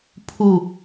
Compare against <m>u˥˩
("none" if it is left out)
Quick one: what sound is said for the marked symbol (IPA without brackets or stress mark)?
pʰ